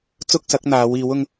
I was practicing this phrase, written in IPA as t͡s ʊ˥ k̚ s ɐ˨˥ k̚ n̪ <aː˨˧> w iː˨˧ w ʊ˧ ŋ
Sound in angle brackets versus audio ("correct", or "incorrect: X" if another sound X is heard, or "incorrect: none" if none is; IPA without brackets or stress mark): correct